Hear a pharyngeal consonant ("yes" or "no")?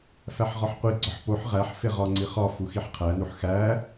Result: yes